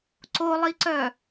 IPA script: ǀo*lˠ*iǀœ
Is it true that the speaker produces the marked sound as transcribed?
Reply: yes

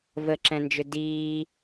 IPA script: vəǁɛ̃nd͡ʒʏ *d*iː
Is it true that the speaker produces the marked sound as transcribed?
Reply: yes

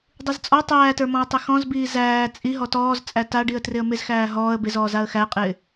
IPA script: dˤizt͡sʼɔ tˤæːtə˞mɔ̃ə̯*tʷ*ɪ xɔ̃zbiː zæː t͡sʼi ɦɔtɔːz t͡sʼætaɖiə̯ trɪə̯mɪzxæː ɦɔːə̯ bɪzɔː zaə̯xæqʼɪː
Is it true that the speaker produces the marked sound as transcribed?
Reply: no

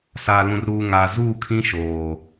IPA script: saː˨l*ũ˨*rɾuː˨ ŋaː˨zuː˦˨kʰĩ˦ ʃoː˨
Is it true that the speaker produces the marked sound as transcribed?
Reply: yes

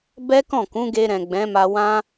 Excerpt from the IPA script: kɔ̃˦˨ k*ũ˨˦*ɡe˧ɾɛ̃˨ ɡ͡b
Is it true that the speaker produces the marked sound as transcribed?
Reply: yes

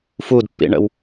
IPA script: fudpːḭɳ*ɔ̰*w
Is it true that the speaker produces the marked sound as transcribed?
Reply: no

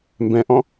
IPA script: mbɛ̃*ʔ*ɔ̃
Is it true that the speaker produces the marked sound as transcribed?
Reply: yes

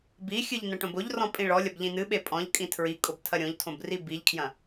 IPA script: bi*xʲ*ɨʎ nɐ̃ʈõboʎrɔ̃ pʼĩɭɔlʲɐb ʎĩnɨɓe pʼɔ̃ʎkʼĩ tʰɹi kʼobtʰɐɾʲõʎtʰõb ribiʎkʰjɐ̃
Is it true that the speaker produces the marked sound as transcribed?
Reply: yes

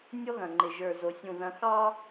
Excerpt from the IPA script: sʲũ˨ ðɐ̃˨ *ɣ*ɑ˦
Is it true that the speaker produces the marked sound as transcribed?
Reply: no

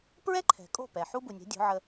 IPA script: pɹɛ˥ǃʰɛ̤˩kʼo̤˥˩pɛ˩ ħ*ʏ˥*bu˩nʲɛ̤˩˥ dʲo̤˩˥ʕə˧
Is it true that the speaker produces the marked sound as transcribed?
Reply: no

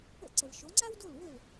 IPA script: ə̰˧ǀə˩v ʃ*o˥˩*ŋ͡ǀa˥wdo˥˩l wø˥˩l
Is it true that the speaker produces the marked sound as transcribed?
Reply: no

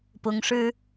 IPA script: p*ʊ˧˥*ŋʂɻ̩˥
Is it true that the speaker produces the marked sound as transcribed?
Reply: yes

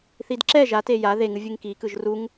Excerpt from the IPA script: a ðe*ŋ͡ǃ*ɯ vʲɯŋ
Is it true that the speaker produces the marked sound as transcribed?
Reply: no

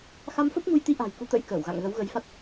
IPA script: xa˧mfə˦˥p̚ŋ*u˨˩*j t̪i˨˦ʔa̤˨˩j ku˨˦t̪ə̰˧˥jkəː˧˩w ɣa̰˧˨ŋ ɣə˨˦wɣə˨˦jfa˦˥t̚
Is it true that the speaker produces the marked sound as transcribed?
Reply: no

